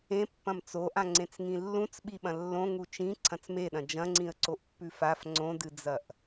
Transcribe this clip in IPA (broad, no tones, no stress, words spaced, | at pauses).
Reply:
ẽpːɐ̃m t͡soʔã ŋ͡ǀẽt͡sŋĩlːũt͡s ɓiɓɐ̃lːõ ŋut͡ʃĩ ǀʰɐ̃t͡smeɗɐ̃ d͡ʒɐ̃ŋ͡ǀĩə̯ǀoʔ pːʉfaf ŋ͡ǀõdɨd͡zɐʔ